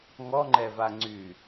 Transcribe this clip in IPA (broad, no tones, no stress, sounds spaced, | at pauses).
ŋ ɔ ŋ͡ǃ ɛ v a ŋ͡ǀ y